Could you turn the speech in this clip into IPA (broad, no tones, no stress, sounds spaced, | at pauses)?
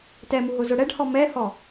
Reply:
t ɛ m u ɦ ʊ z ʊ ɽ ɛ ɖ h ɔ m ɛ h ɔ